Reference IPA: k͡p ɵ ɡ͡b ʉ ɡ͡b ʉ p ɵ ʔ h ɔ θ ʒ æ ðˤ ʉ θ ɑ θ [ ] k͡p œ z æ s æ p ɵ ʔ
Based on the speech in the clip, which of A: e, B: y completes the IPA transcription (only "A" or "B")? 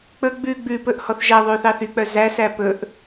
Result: B